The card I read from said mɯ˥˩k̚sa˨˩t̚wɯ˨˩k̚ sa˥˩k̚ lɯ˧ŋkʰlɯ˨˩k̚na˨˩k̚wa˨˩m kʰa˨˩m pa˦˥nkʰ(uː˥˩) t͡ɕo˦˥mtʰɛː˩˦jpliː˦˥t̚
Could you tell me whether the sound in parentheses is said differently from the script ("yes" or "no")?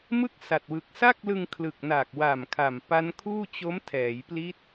no